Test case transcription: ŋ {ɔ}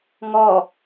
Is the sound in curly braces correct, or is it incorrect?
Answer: correct